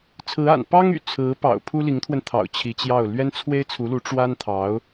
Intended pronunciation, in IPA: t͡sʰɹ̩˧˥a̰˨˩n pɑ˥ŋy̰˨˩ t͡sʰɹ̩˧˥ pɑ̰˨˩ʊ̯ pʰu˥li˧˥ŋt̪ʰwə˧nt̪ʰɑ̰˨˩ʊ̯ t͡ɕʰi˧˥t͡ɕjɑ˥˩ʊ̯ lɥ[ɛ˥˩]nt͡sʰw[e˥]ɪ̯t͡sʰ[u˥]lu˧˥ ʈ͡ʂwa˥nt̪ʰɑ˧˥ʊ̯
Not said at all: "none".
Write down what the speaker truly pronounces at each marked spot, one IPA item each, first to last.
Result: ɛ˥, e˥, u˧˥

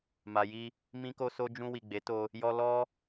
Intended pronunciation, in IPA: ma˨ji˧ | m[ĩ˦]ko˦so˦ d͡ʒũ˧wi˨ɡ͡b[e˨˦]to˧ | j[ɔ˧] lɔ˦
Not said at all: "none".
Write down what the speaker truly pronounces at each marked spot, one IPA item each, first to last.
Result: ĩ˦, e˨˦, ɔ˧

